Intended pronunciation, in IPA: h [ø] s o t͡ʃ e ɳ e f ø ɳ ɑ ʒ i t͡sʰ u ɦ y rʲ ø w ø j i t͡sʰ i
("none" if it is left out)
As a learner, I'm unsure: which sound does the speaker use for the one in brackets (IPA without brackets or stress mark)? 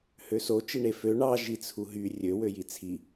ø